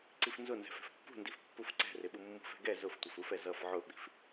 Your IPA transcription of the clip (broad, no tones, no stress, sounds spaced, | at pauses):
ǀ i f n z ʊ n z ɛ̤ f ɛ̤ f pː ṳ n d i f pː u f ǀ ɛ̤ r ɪ ɓ u mː ṳ f ɛ̤ ɡ ɛ z ʊ f tʷ ʌ f u f ɛ z ʌ f ʕ ʊ ɓ i̤ f